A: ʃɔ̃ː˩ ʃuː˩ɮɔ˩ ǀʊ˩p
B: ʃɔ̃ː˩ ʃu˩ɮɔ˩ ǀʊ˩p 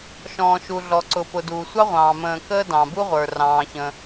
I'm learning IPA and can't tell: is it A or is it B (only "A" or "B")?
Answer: B